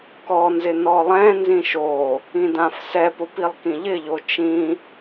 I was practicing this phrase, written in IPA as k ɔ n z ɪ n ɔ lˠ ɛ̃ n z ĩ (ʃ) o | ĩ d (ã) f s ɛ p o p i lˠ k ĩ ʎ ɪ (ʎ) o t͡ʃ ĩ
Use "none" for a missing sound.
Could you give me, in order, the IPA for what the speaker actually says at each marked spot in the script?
ʃ, ã, ʎ

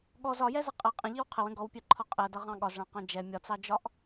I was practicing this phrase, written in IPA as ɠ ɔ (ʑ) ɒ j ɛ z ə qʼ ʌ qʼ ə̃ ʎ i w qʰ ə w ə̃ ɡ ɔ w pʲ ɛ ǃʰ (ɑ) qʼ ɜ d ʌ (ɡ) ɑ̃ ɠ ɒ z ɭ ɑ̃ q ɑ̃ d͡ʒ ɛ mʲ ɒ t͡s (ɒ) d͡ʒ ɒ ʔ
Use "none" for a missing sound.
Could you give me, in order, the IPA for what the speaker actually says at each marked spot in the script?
z, ɒ, ʁ, ɑ

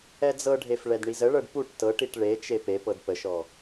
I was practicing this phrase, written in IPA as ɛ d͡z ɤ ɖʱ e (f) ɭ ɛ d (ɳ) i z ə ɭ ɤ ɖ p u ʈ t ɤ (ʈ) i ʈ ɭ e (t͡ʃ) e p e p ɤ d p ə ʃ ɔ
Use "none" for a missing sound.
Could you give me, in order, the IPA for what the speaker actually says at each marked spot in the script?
f, ɳ, ʈ, t͡ʃ

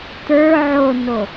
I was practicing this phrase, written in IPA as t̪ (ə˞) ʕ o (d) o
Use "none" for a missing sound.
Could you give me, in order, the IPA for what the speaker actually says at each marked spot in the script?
ə˞, n

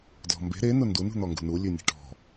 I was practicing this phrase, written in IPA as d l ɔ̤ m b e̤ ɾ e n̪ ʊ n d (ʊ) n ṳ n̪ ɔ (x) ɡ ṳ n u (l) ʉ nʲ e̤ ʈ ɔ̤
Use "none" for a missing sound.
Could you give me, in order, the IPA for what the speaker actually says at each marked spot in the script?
u, ŋ, lʲ

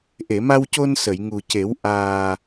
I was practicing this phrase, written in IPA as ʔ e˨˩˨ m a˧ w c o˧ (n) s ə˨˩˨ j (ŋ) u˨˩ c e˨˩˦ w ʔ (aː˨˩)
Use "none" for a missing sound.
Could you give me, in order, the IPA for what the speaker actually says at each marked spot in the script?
n, ŋ, aː˨˩

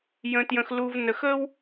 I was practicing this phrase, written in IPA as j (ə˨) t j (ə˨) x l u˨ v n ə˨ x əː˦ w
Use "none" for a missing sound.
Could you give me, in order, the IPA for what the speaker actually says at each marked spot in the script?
ə̃˨, ə̃˨

